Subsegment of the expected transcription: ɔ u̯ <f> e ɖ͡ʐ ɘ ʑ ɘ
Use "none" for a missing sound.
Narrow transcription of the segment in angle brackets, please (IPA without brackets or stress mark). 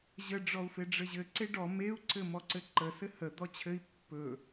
f